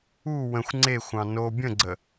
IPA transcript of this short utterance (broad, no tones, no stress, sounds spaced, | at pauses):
u w ə̃ xʷ ŋ͡ǀ e xʷ ɑ̃ n o bʲ ə̃ ɡ͡ǀ ə